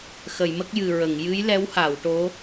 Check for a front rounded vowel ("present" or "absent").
absent